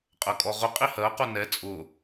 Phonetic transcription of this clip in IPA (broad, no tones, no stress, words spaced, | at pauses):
qʼɜkʼɔʁʊqʼi hɜqu nɛ t͡sʼʊ